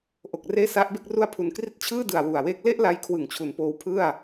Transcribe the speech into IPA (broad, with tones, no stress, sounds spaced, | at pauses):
ʔ o˨˩ k̚ r eː˧ s a˦˥ ʔ b e˥˩ k̚ r u˧ a̯ pʰ u˩˦ n k r i˦˥ t̚ t͡ɕʰ ɯː˥˩ d ɯ˨˩ a̯ w u˨˩ a̯ w eː˦˥ k̚ l e˥˩ ʔ l a˧ j kʰ w ɯ˨˩ ŋ t͡ɕʰ u˩˦ n p oː˧ w pʰ ɯ˥˩ a̯